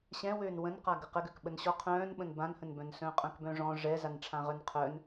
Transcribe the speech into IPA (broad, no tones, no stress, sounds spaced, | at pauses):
ɕ ɛ̃ w øː n w ə̃ n q a ɡ ə q ə ɡ ø k ɓ ə n ɕ ɔ qʰ œ̃ː n ɓ ə̃ n b ã n h ə̃ n b œ̃ n s œ̃ː qʼ œ̃ k b œ̃ ʐ ɔ̃ ʐ ɛ z a n ʈ͡ʂʰ ã ʁ œ n qʰ œ n